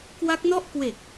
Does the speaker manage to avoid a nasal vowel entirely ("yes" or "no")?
yes